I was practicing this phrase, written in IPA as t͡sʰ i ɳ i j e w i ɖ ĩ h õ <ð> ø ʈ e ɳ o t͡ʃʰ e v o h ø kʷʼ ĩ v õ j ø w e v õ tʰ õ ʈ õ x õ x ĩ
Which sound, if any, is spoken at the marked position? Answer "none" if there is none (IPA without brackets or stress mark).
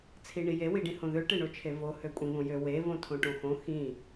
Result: ð